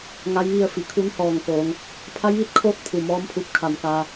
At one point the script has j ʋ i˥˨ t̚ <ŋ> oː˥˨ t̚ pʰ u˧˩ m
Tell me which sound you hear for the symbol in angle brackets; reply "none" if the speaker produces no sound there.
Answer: kʰ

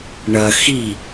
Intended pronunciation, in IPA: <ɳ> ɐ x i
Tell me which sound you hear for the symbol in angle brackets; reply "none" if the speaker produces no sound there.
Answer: ɳ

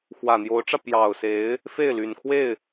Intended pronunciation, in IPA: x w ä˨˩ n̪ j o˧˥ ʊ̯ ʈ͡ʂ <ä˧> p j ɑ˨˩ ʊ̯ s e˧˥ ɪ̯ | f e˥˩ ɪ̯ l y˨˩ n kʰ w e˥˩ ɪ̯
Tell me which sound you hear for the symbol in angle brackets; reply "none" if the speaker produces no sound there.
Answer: ä˧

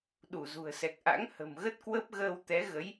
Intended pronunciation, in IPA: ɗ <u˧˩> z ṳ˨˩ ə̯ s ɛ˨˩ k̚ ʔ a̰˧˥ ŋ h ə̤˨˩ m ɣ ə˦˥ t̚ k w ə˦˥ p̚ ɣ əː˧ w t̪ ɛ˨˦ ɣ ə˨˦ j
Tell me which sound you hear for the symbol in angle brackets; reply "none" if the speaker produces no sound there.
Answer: u˧˩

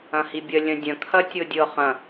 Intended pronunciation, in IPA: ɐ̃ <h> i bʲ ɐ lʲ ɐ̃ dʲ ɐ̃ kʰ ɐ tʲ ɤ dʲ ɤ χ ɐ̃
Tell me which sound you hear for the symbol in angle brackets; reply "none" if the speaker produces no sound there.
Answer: h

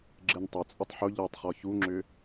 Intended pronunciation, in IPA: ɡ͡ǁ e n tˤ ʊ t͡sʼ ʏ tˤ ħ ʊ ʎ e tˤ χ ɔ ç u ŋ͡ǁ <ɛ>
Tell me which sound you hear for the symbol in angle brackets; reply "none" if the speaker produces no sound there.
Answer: ʏ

